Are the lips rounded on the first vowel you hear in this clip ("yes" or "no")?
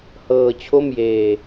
no